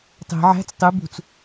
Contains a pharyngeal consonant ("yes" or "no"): yes